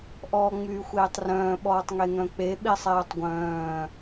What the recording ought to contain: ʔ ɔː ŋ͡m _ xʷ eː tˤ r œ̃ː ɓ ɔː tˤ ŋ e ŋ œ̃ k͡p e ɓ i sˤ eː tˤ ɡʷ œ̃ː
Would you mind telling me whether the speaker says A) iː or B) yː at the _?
B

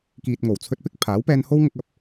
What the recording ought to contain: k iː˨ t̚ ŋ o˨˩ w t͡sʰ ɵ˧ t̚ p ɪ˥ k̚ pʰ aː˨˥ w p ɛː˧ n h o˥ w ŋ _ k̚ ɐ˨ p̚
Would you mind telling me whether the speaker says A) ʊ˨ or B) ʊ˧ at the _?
B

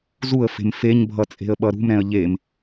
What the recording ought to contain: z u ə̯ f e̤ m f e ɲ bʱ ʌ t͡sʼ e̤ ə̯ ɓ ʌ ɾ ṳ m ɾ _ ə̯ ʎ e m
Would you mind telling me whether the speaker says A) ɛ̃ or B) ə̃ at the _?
A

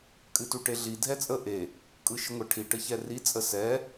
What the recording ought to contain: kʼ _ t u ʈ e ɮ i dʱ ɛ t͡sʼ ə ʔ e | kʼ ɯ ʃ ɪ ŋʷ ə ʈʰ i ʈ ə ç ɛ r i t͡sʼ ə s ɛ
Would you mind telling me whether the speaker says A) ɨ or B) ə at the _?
A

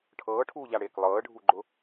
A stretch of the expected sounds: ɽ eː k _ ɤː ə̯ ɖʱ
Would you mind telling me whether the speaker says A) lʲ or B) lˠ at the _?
B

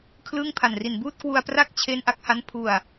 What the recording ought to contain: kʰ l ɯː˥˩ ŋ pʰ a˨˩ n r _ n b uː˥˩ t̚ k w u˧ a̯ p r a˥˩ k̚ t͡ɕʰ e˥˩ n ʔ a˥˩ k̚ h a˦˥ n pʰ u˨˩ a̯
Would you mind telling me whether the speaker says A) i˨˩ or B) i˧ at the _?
A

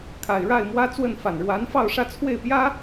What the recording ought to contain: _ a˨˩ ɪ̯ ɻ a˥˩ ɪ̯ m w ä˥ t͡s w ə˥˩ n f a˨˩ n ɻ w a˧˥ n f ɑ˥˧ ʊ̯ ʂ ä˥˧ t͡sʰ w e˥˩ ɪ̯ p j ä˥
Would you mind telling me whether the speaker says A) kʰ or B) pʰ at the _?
A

